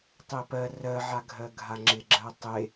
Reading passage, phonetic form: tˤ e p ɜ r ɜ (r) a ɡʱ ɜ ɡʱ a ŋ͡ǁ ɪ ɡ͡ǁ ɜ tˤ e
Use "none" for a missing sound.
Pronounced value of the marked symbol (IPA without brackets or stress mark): ʕ